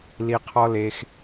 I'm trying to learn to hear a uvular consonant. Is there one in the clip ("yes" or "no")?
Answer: yes